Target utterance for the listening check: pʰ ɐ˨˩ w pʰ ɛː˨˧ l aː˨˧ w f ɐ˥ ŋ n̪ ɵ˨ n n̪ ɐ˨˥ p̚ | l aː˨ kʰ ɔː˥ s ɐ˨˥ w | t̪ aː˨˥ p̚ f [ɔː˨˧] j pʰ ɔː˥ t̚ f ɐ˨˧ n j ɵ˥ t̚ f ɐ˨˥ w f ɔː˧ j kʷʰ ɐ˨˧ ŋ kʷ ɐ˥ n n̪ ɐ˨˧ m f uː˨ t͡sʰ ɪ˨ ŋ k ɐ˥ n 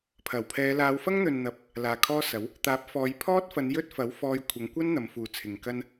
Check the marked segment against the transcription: correct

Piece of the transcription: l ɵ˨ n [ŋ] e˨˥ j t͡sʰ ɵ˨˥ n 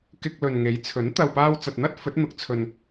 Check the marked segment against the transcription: correct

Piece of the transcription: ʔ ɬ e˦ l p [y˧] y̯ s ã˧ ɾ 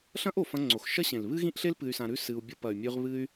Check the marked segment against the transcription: incorrect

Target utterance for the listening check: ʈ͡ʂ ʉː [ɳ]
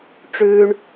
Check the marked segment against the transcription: correct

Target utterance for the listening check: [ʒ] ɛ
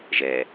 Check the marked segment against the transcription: correct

